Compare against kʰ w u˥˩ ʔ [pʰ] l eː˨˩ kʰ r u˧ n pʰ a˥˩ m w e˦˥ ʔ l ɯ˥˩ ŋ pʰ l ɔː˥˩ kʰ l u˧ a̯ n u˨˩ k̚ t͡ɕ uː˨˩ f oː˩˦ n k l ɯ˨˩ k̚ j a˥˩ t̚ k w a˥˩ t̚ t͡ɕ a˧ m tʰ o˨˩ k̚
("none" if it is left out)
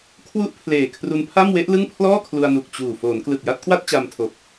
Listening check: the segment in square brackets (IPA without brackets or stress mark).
pʰ